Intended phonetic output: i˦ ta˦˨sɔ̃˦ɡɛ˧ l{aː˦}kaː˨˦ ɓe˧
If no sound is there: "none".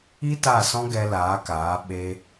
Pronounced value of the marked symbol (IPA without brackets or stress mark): aː˨˦